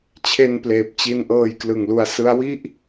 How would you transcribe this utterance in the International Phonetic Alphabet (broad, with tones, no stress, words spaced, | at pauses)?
t͡ɕʰe˧npleː˨˩p̚t͡ɕi˧n ʔɤː˧jklɯ˨˩ŋlu˧a̯ sɯ˦˥a̯wi˥˩ʔ